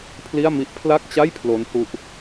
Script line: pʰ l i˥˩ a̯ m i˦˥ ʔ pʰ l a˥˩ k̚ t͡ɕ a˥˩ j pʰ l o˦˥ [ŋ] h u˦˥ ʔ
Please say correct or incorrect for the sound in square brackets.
incorrect